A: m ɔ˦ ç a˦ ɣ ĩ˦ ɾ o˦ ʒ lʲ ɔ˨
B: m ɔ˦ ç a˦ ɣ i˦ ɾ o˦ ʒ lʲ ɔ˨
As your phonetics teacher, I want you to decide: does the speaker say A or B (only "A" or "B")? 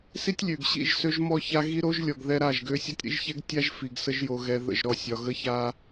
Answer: B